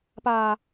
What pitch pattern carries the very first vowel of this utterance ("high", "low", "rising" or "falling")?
low